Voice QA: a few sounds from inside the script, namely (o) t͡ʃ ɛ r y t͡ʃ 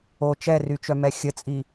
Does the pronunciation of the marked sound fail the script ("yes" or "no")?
no